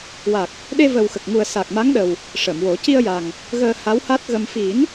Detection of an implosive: present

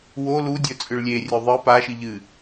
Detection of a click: absent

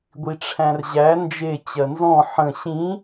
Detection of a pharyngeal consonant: present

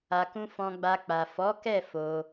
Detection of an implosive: absent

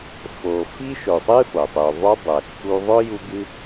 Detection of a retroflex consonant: absent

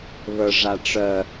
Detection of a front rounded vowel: present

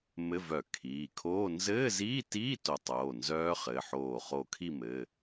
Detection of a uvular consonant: present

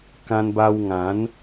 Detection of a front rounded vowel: absent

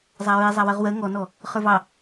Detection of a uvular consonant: present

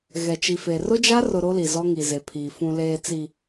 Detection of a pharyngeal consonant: absent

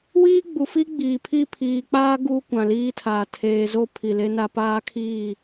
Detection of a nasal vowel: present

